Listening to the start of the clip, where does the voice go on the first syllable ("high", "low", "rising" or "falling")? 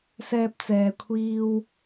high